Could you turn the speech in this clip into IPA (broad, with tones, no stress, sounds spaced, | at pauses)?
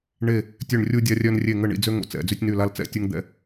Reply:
ɳ e˧˩ | tʲ ø˧˩ ɳ rʲ u˧ dʲ a˧ rʲ œ˧ n rʲ e˧˩ ŋ ə˧˩ ɳ ḭ˧˩ d͡z ø˧ ŋ o̰˧˩ t͡s ɛ̰˧˩ d͡z y˧ tʲ n y˧˩ l a˧ l t͡s ɛ̰˧˩ tʲ u˧ ŋ d̪ ɛ̰˧˩